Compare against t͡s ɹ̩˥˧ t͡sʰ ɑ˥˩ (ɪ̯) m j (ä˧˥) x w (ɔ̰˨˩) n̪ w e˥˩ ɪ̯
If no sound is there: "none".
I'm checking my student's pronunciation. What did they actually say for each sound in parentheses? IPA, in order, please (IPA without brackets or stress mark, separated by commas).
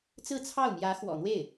ʊ̯, ä˧˥, ɔ̰˨˩